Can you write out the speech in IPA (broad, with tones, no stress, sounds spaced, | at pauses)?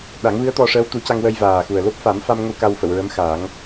ɗ a˨˩˦ ŋ v ɨ˧˥ ə̯ t̪ ɔ˧ ʂ əː˧˥ w t̪ u˨˩˦ c a˧ ŋ w ə˧ j v aː˨˩ x u˨˩ ə̯ l o˦˥ p̚ f a˨˩˦ m f a˧ m ŋ ə˧ w k a˧ w f ə˨˩˨ w ɹ ə˧˥ m x a˨˩˦ ŋ